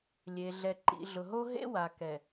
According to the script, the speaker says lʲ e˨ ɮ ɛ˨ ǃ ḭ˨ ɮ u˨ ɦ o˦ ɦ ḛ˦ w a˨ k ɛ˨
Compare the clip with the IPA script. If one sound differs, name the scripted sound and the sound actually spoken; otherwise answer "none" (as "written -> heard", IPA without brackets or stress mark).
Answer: u˨ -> ʊ˨